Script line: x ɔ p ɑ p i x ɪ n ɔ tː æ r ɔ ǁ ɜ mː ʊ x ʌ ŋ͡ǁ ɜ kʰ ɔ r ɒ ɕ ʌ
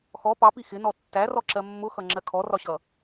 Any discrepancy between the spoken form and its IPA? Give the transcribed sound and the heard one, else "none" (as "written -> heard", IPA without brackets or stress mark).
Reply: none